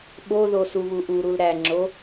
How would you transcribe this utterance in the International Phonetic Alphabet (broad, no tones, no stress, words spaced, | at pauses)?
ɓoðo suβuʔuɾul ɾæŋ͡ǁo